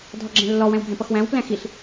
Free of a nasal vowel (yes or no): no